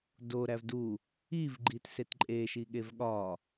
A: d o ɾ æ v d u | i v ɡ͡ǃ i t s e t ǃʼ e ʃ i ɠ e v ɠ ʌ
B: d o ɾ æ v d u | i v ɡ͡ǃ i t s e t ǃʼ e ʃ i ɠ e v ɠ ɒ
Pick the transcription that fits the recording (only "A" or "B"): B